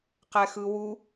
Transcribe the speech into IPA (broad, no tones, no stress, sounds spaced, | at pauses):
q ɛ x ɯ w u